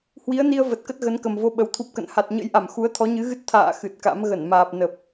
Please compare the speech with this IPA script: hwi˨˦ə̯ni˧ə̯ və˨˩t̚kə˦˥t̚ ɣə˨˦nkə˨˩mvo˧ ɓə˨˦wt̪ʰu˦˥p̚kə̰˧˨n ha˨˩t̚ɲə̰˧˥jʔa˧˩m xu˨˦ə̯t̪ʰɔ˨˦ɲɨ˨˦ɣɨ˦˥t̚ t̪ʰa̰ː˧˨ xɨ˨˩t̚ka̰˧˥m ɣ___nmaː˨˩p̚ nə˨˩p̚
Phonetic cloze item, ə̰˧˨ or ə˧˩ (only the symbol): ə˧˩